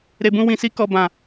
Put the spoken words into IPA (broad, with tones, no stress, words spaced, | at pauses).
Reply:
ɾe˨bũ˧ wĩ˨si˧ kɔ˨ bã˨